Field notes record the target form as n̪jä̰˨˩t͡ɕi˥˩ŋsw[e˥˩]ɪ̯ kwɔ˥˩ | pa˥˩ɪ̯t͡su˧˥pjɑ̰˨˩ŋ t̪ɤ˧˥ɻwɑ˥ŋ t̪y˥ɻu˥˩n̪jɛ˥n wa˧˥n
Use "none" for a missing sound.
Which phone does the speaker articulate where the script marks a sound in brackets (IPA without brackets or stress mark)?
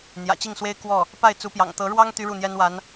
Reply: e˥